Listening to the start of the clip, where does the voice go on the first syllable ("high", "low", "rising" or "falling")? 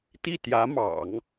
falling